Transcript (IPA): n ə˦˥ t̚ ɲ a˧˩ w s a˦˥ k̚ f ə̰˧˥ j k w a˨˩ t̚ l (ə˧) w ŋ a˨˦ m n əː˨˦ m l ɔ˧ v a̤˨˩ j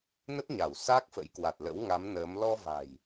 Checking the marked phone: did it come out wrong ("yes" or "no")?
yes